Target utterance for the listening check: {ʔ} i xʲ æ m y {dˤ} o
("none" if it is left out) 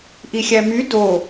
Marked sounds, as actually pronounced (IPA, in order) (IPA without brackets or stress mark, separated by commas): ʔ, d